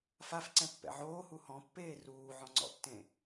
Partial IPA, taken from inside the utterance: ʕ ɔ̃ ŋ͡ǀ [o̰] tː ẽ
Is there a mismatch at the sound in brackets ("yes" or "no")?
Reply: yes